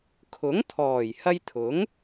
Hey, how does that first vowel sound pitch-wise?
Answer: rising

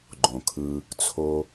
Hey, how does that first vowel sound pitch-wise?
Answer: low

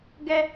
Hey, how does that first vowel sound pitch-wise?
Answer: high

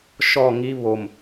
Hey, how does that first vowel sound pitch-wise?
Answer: falling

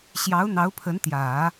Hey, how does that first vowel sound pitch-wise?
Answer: rising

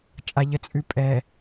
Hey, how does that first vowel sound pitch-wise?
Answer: low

